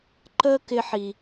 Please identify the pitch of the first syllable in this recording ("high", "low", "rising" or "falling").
high